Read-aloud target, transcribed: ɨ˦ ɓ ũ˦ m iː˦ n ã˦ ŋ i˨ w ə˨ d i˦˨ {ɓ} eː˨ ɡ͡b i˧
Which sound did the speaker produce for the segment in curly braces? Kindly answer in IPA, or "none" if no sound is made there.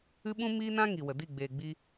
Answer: ɡ͡b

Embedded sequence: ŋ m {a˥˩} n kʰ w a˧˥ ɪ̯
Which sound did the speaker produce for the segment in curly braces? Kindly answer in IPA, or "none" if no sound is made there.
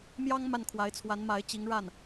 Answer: a˥˩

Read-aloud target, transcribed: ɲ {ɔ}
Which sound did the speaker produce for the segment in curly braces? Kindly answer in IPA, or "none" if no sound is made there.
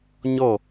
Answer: ɔ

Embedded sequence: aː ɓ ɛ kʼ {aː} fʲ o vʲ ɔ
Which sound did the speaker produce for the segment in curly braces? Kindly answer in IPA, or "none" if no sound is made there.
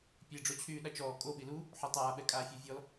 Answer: aː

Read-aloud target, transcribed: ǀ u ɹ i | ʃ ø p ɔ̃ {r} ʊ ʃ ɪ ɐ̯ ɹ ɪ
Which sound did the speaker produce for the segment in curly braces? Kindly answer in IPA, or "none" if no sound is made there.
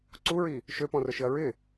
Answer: r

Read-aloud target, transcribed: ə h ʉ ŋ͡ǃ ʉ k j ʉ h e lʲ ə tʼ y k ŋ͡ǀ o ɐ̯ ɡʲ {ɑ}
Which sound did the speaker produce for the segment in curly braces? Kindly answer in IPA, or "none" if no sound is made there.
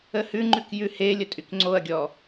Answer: ɔ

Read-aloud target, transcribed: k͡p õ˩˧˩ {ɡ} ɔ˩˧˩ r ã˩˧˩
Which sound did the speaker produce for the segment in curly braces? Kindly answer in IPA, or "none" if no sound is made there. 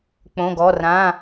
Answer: ɡ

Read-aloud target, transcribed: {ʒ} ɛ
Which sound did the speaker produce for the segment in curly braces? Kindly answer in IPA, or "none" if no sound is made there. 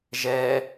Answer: ʒ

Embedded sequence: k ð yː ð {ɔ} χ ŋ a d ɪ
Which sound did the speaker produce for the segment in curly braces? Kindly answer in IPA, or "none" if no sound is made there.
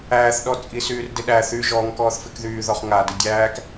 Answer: ɔ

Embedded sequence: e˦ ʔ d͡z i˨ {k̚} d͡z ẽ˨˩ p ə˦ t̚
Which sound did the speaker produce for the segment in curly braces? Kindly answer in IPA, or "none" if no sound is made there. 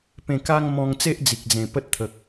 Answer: k̚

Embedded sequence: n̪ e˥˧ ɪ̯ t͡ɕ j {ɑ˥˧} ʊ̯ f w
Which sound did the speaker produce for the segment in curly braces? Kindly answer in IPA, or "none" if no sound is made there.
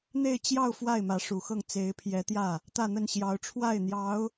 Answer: ɑ˥˧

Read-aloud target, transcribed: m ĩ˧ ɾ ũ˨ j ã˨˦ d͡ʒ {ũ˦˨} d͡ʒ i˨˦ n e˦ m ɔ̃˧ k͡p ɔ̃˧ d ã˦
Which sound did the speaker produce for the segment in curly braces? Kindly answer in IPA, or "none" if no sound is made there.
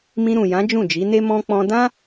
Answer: ũ˦˨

